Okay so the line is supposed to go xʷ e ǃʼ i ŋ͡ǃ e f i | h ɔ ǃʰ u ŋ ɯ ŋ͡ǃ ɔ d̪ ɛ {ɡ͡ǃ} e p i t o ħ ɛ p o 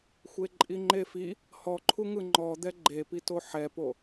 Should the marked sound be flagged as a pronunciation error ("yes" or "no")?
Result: no